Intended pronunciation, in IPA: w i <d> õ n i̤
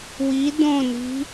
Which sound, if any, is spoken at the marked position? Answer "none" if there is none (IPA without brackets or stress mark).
d